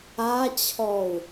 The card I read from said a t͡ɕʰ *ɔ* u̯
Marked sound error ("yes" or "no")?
no